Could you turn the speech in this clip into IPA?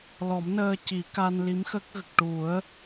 l ɔ˨˩˦ m n əː˧ c i˨˩˦ k a˧ n l i˧˥ m x ə˦˥ k̚ ɣ ə˨˩ k̚ ʈ u˨˩˦ ə̯

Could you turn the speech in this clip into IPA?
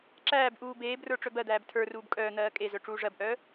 ǁ æː b ʔ uː b eː b r ə˞ ʈ͡ʂ œ b ɜ d̪ æː b tʰ ə˞ r uː b kʼ œː n̪ ɜː kʼ e z œ ʈ͡ʂ uː ʐ ɜ b ʔ œː

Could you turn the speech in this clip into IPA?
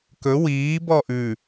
k ɵ w iː b ɔ ʔ ʉ

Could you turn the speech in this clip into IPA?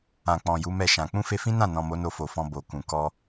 ã˨ k͡p ɔ̃˨ j u˨˦ m ɛ˦˨ ʃ ã˨ k͡p ũ˧ f e˧ f ĩ˦ n ã˦˨ n ɔ̃˨ m o˨˦ n o˧ f o˨ f ɔ̃˧ b o˨ k ũ˨ k ɔ˧

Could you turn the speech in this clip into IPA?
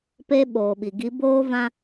p e˦ ɓ oː˨ ɓ i˨ ɡ i˨˦ b oː˦ v ã˦

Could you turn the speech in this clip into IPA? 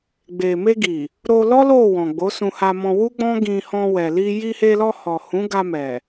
ɡ͡b e˨ m e˧ ɡ i˨ | ɾ o˧ l ɔ˦ l o˦˨ w ɔ̃˨ ɡ͡b o˨˦ s ũ˧ h a˧ m ɔ̃˧ w u˦ ɡ͡b ɔ̃˦ ɡ ĩ˧ h ɔ̃˧ w ɛ˨ l i˧ j i˧ h e˧ l ɔ˧ h ɔ˨ h ũ˨˦ ɡ a˧ m ɛ˨

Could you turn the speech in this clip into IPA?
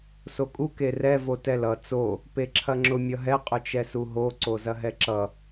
s o kʼ u k e r ɛ v o t ɛ l ʌ t͡s o | p e ǁʰ ɐ ŋ͡ǁ ʊ mʲ ʌ ɦ ɛ qʼ ʊ t͡ʃ ɛ s u ɦ o ǀ o z ɐ ɦ ɛ ǁ ʌ

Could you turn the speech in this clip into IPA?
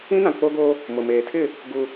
ĩ˦ n ã˨ k͡p o˦ ɡ o˦ | m ʊ˨ m eː˨ tʰ ɪ˦˨ | ɡ u˦

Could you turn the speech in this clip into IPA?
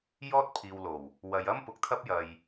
j ɔː˥ t̚ pʰ iː˨ w l o˨˩ w | w ɐ˨˧ j ɐ˥ m p ʊ˨˥ k̚ t̪ʰ ɐ˥ p̚ j ɐ˨ j

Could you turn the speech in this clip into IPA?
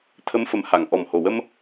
t̪ʰ ə˧˥ m f ə˨˩ m h a˨˩˨ ŋ ʔ ɔ˨˩ m h o˨˩ w ə˧ m

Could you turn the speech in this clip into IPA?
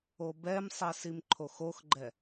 o b ɛ m sˤ ɛ s i m ǃʰ o x o x ɡ͡ǃ ɛ

